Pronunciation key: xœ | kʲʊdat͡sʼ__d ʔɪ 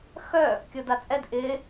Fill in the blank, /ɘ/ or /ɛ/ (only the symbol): ɛ